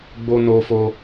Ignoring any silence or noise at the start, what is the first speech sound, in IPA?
ɡ͡b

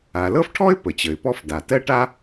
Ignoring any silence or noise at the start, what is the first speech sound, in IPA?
a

